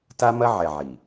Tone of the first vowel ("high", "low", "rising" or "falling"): high